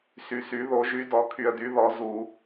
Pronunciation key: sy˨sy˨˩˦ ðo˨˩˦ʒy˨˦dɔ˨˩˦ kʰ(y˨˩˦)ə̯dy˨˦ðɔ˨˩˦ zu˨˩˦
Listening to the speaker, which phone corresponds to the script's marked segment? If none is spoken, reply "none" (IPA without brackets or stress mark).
y˨